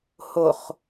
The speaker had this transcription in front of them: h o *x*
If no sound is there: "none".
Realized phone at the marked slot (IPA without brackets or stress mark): χ